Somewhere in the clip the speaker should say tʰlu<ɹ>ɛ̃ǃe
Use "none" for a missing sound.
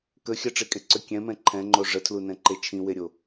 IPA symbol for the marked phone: n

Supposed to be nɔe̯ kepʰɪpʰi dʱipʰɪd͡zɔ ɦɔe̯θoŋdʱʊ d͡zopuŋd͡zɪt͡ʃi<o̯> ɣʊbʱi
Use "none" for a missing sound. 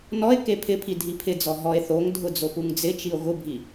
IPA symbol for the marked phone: o̯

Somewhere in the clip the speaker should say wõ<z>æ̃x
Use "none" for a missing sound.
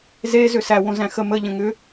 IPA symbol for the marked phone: z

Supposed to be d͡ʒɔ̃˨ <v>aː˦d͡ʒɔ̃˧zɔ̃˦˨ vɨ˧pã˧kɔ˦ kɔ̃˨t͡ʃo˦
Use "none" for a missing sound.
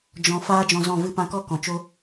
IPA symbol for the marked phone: f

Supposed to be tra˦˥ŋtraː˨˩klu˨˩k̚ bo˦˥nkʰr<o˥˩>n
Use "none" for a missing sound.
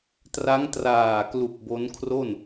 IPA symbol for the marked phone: o˥˩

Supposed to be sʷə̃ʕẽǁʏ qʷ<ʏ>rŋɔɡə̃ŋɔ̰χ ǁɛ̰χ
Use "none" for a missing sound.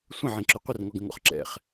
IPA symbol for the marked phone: ɪ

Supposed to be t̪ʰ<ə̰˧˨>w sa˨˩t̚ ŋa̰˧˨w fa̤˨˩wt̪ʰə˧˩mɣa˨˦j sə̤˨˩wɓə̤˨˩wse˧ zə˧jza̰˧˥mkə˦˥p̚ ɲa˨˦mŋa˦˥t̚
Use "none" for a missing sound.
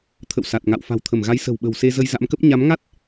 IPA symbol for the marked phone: ə̰˧˨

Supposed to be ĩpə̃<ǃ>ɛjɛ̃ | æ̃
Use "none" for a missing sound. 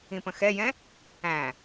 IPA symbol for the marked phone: x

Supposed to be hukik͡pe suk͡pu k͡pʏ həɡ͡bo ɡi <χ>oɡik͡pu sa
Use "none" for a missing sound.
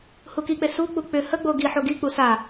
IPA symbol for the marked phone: ħ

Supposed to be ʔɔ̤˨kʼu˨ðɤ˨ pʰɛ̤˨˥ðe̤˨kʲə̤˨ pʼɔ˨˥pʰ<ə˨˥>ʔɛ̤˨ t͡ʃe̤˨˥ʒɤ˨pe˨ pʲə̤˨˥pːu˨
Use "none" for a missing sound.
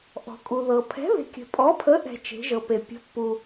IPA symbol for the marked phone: ə˨˥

